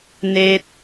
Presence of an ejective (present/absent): absent